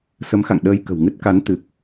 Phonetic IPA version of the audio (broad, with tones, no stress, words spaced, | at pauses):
sə˨˦mxa̰˧˨ŋ ɗəː˧j kə̤˨˩wŋɨ˦˥t̚ka˨˦n t̪ɨ˨˩k̚